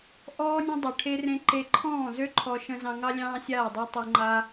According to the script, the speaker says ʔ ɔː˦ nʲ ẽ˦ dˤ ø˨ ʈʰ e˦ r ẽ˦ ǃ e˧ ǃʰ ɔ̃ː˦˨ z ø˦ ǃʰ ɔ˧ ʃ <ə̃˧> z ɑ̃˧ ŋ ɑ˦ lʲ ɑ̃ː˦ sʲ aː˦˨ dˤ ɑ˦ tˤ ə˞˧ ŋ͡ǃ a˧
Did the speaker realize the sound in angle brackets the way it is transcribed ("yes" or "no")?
yes